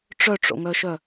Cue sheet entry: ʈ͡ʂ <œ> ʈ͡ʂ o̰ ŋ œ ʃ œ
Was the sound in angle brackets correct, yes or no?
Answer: yes